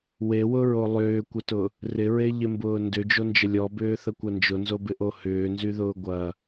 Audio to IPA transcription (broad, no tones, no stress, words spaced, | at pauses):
wewʊɹo lˠʏːkʷətʊ | rɪɹeʎɪmbʊː ndʏd͡ʒond͡ʒə lʲɔbʏːθəkʷɐ nd͡ʒʊnzobɪʔo hʏːnzyðʊː ɡʷɐ